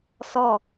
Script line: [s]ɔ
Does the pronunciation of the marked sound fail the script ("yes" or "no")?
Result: no